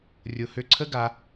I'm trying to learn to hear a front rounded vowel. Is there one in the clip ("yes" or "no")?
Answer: yes